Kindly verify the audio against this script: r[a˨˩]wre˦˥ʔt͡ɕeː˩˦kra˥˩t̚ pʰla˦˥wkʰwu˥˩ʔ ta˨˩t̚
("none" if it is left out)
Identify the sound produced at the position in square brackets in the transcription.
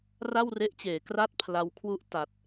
a˥˩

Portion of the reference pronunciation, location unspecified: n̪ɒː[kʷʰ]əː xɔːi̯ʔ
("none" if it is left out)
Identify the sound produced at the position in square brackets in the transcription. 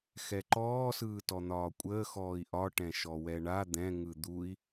kʷʼ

